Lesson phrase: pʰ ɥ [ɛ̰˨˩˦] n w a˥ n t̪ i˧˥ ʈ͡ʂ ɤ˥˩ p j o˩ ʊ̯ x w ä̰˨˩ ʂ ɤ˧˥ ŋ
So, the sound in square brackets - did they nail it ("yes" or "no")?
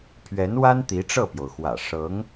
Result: no